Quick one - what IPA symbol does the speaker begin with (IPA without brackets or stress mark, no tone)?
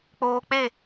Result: k͡p